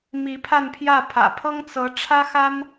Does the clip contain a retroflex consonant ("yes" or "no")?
yes